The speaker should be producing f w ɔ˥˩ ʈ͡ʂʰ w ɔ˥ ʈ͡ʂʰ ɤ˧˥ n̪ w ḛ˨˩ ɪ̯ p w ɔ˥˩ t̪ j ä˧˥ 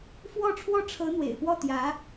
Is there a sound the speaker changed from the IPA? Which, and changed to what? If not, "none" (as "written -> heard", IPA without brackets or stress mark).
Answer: none